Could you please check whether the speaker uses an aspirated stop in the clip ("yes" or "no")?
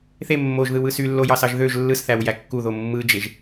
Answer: no